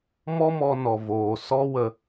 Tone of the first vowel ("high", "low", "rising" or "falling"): high